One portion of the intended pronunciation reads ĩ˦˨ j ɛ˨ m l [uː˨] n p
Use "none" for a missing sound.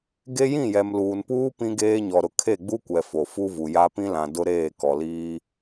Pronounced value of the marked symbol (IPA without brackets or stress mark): uː˨